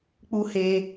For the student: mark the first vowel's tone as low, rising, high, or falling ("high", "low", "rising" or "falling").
high